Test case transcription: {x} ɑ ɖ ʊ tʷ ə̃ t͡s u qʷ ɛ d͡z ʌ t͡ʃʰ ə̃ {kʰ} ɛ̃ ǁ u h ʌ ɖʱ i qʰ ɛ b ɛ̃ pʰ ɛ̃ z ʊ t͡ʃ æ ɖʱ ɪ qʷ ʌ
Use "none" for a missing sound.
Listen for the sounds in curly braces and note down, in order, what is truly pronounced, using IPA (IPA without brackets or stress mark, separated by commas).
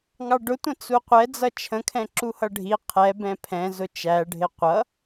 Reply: ŋ, kʰ